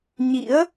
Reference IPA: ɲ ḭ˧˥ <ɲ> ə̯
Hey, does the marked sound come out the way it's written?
no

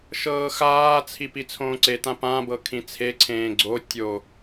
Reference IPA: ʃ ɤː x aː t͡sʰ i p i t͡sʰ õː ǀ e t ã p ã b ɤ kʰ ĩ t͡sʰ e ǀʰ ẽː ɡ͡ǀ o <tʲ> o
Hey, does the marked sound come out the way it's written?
yes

